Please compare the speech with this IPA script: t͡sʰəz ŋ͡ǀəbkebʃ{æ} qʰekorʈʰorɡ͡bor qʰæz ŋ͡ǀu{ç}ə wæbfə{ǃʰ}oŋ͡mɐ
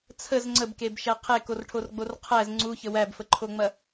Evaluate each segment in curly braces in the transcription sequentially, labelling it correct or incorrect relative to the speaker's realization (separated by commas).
correct, correct, correct